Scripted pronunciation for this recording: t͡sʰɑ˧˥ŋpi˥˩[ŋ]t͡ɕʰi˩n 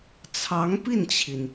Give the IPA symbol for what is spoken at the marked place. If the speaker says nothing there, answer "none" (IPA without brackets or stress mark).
n